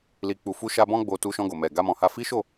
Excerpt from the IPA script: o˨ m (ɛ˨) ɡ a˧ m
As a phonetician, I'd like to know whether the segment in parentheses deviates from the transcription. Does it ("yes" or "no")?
no